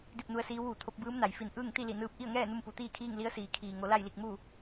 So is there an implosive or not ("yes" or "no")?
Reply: no